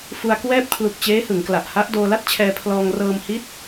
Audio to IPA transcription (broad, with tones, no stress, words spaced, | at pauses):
fu˧a̯kwɛː˥˩p̚kʰlu˨˩k̚ t͡ɕeː˦˥hɯ˩˦ŋkla˨˩ʔha˦˥ʔ doː˧la˥˩t̚t͡ɕʰɛː˧pʰlɔː˧ŋ rɤː˧mhi˦˥t̚